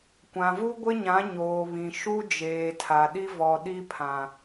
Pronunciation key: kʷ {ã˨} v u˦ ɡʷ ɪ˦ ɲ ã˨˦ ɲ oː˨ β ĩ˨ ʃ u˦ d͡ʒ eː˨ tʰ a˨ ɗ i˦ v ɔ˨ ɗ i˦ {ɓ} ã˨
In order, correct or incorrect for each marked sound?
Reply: correct, incorrect

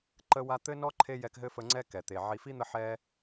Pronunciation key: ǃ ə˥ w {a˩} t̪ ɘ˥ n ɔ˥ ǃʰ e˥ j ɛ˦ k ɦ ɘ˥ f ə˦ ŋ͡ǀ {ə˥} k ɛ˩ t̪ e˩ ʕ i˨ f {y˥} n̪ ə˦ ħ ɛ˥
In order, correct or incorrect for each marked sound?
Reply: incorrect, incorrect, incorrect

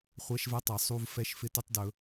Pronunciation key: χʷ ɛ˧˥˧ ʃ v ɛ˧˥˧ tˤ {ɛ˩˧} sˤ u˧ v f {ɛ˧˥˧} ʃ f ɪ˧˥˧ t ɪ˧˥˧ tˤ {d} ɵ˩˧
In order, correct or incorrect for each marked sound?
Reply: correct, correct, correct

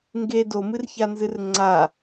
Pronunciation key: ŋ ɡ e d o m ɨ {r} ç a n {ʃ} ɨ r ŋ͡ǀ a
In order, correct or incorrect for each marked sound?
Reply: correct, incorrect

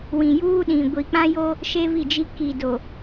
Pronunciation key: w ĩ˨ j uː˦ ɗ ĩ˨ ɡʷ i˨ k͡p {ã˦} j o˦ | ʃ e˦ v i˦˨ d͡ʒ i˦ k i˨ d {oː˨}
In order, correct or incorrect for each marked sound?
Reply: correct, incorrect

